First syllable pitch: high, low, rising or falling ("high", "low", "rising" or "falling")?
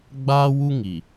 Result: high